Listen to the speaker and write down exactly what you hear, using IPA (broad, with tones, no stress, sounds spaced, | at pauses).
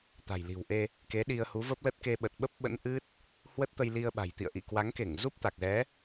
t̪ a̤˨˩ j l i̤˨˩ w ʔ e˧ | k e˨˦ ɗ i˧ ə̯ h u˨˦ v ə˦˥ p̚ l ə˦˥ t̚ k e˧ ɓ ə˨˩ t̚ ɓ ə˦˥ p̚ ɓ ə̰˧˥ n ʔ ɨ˦˥ t̚ | h w ə˦˥ t̚ t̪ ə˧ j l i˧ ə̯ ɓ a̤˨˩ j t̪ ḭ˧˨ ə̯ ʔ ḭ˧˨ k w a˨˦ ŋ k e˧˩ ŋ z u˦˥ p̚ t̪ a˨˩ k̚ z ɛ˨˦